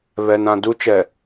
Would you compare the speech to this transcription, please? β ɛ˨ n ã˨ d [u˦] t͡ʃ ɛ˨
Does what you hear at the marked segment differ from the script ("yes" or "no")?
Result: no